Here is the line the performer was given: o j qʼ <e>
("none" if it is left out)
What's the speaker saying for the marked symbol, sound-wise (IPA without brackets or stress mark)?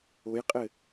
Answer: ɘ